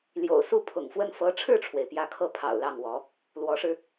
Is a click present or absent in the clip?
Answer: absent